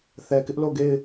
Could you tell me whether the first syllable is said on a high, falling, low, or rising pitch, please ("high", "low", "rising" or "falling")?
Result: low